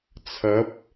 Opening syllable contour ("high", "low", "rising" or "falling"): rising